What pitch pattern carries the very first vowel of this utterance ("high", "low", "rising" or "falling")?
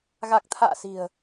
low